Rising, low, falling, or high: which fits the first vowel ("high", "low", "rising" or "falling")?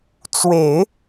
low